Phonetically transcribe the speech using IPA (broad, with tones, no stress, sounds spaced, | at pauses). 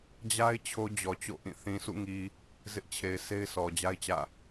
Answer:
d͡ʑ a˦ ɪ̯ t͡ɕʰ o˦ d͡ʑ ɔ˨ t͡ɕ o̰˦˨ ʔ ĩ˦˨ θ ĩ˨ s ṵ˦˨ ŋ i˨ | z ɪ˦ ʔ t͡ɕʰ e˨ ɪ̯ sʰ e˦ ɪ̯ s ɔ˨ d͡ʑ a˦ ɪ̯ t͡ɕ ä̰˦˨